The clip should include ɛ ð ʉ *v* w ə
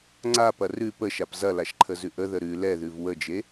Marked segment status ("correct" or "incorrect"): correct